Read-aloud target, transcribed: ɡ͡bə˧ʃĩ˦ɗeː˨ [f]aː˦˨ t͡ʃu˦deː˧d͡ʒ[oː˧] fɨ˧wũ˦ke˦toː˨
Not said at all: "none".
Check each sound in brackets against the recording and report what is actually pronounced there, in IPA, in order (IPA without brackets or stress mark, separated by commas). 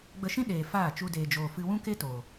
f, oː˧